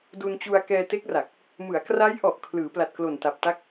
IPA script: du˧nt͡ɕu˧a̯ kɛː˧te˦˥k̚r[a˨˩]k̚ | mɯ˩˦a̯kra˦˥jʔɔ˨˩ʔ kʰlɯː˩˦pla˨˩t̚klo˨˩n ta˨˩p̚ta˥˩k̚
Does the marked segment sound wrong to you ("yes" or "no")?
no